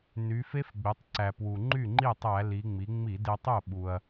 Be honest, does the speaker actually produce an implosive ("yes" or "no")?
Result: yes